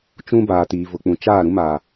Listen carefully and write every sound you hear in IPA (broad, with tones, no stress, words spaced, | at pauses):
t͡ʃũ˦ baː˨tiː˨ vʊ˨k͡pũ˨ t͡ʃaː˦˨ ɾũ˦maː˨